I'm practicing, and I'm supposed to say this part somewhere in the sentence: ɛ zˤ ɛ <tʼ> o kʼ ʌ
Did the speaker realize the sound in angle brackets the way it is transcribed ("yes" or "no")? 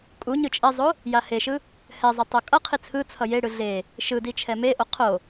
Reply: no